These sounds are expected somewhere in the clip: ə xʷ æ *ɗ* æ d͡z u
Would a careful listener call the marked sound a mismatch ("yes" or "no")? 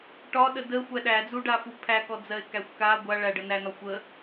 no